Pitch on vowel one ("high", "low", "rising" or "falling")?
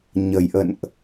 low